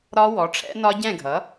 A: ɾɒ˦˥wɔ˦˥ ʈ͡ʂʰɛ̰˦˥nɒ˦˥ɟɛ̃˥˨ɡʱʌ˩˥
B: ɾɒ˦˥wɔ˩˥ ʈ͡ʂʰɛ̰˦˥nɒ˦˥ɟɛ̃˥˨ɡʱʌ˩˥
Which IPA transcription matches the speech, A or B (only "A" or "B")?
B